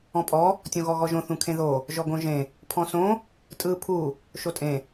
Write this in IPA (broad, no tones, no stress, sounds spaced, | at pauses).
ɔ̃ pʼ ɔ | tʲ õ ɣ ɔ ɣ ɔ ʒ õ θ ũ kʰ ẽ ð o | ʒ ɔ ɡ õ ʒ ẽ | pʰ ɔ̃ s õ | tʼ ɯ pʰ u | ʃ o tʼ ẽ